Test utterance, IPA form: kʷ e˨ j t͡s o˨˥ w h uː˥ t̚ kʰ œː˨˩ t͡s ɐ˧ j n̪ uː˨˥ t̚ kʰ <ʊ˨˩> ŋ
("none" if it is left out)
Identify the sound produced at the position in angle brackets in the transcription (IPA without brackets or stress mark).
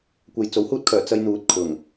ʊ˨˩